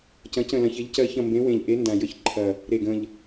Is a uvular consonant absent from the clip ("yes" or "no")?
yes